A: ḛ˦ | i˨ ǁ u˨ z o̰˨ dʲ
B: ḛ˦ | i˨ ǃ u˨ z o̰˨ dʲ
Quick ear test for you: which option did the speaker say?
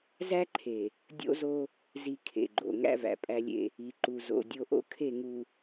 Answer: B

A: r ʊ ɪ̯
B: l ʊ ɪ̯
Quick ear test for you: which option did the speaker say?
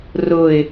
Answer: A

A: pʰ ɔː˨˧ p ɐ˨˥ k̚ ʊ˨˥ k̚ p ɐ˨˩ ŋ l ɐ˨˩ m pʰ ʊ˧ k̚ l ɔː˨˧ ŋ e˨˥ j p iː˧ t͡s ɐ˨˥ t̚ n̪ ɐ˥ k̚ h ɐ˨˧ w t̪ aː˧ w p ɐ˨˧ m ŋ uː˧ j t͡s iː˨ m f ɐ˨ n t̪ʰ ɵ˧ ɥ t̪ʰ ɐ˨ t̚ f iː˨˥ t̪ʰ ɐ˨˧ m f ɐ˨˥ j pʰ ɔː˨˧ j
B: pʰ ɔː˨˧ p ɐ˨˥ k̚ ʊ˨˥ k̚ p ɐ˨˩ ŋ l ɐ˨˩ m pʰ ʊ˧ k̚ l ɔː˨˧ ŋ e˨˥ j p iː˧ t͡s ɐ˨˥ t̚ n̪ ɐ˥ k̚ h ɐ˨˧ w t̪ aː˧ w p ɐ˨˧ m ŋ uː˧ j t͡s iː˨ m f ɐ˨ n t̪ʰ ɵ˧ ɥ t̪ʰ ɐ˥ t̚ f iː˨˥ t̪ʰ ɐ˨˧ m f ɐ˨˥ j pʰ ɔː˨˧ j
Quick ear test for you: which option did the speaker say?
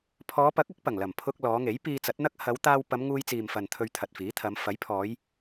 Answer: A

